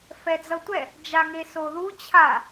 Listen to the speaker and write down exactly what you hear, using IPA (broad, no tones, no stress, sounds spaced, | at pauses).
f ɛ d͡z ʌ tʷ ɛ | d͡ʒ a ŋ e s o ð u t͡ɕʰ a